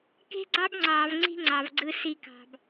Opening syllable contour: high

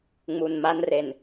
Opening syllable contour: low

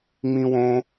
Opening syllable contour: high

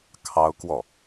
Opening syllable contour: high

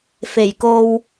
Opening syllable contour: low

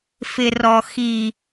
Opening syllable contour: low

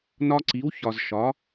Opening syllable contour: high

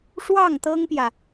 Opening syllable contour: falling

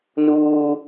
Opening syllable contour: high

